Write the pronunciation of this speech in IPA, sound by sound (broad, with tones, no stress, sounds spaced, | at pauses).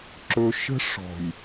ǁ ɵ˦ ʃ ə̤˦ ʂ ɔ̤˨ j